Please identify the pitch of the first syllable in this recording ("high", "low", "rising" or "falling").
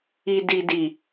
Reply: low